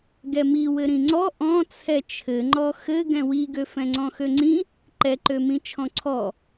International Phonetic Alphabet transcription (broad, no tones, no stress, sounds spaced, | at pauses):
ɡ ɛ m i w ɘ ɾ ĩ ŋ͡ǀ ɔ ʔ ɔ̃ t͡sʰ ɛ t͡ʃʰ ɘ ŋ͡ǃ ɔ x ɘ ɡ ɛ̃ w i ɡ ø f ɛ̃ ŋ͡ǀ ɔ̃ x ø ŋ͡ǀ ĩ | ǃ ɛ ǃ ø m ĩ t͡ʃʰ ɔ̃ ǀʰ ɔ